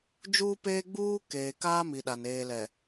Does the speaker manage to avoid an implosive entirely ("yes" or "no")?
no